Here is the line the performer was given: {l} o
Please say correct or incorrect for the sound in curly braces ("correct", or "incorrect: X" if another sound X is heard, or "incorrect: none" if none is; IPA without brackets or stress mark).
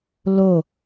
correct